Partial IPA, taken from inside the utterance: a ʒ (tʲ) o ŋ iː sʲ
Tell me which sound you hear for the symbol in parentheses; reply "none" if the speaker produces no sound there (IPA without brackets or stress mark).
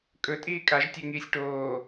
tʲ